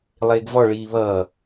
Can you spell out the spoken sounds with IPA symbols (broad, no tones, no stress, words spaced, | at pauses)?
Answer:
lˠeːɡvɔ ɭiːβʌː